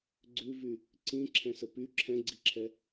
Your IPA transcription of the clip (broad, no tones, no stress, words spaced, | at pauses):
ɡ͡ǀʉvy | ǀĩǁʰɛ̃sə py ǁʰɛ̃ɡ͡ǀiǁʰɛ